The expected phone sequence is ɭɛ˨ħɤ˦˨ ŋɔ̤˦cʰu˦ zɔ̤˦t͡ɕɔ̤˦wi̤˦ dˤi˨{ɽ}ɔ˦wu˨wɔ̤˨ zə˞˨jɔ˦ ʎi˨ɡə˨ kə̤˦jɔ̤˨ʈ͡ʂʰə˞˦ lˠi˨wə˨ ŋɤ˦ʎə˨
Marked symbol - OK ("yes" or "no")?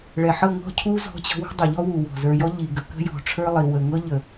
no